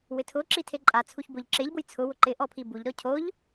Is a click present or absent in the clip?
present